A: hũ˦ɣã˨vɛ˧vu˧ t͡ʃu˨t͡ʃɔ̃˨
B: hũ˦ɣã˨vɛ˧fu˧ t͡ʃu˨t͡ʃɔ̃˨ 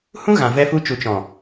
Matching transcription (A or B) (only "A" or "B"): B